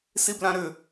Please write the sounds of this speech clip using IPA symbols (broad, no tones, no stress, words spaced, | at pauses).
siblãɾʏ